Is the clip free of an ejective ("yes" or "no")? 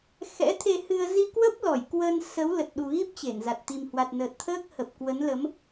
yes